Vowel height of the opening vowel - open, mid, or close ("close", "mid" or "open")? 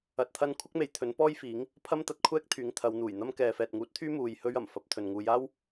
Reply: open